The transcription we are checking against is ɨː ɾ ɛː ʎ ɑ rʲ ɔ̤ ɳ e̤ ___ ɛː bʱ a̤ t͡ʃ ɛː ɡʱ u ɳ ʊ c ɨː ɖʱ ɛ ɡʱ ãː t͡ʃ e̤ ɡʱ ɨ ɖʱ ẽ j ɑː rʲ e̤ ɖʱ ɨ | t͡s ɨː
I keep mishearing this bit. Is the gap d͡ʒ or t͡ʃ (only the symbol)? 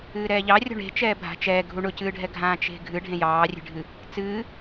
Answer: t͡ʃ